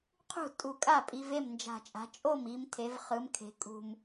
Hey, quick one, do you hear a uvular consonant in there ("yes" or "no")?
yes